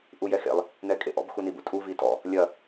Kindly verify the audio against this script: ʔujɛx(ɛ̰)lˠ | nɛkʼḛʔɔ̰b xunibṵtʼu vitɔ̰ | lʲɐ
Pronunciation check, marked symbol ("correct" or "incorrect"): incorrect